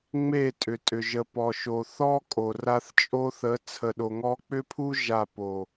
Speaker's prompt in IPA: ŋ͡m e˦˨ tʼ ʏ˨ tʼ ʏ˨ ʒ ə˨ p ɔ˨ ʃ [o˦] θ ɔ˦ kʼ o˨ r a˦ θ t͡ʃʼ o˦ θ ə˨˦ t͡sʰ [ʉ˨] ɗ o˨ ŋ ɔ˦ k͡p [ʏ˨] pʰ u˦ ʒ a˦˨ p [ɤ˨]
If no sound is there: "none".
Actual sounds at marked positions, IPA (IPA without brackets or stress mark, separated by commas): o˨, ə˨, ʏ˦, o˨